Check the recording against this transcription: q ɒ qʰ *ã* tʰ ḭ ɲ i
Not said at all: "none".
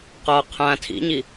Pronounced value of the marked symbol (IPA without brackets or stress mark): ã